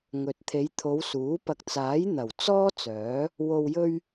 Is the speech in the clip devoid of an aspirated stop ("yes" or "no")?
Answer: no